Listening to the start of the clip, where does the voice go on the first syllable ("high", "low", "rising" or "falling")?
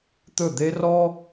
falling